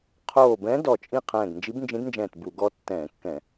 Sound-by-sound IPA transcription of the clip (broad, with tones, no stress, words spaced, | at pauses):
qʰoː˧˩bɛ̃˧˥ dɔ˧˩t͡ʃʼĩ˥˨ qʰɛ̃ː˧˩ɡnd͡ʒi˧˥bnd͡ʒĩ˧˥dnd͡ʒɛ̃ː˧˩t bu˧˩˧ɡɔ˧˥tːɛ̃ː˧˩˧kːɛ̃˧˩˧